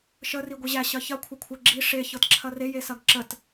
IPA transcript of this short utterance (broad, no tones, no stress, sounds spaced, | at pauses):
ʃ ə r i ɡʷ i ʑ æ ɕ ɐ ç ɐ kʷʰ ɐ kʷʰ ə ɡ͡ǁ i ʂ e ç ɤ t ǁʰ ɐ r e j e s ɐ ɡ ǁ ə t